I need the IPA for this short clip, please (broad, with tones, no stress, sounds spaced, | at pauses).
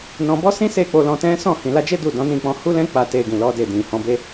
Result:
n ɔ̃˧ b ɔ˦ s ĩ˦ s e˦˨ k͡p o˧ l ɔ̃˧ t ɛ̃˦ s ɔ̃˦˨ h ĩ˨ l a˧ d͡ʒ e˦ d u˦˨ d ɔ̃˨˦ n ĩ˦˨ k͡p ɔ̃˧ h u˦ l ɛ̃˦ k͡p a˦˨ t e˧ ɡ ĩ˨ l ɔ˨˦ d e˦˨ d ĩ˨ h ɔ̃˨˦ b e˦